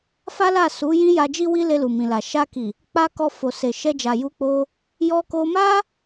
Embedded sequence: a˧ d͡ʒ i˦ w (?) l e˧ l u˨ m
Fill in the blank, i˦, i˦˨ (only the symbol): i˦